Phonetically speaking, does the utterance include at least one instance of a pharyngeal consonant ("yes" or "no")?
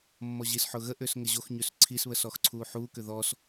yes